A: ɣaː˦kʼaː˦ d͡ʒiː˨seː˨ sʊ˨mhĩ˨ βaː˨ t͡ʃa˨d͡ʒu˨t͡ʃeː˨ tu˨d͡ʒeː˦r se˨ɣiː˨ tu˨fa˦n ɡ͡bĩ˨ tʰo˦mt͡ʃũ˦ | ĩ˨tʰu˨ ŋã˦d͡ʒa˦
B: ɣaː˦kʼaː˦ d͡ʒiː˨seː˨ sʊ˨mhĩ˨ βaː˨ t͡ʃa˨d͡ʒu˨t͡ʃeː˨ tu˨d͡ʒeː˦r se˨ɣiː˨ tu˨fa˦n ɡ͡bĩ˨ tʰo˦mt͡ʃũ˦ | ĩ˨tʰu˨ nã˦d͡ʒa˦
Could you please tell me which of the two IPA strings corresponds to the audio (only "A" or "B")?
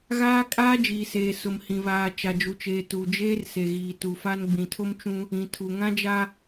A